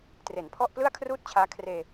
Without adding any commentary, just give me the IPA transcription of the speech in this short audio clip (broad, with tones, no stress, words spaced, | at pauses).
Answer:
tre˩˦npʰɔ˥˩ʔ plɯ˥˩a̯kʰruː˥˩t̚t͡ɕʰaː˦˥ kʰreː˧